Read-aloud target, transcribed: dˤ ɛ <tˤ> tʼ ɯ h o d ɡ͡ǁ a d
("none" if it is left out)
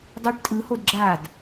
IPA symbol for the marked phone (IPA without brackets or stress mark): ʈ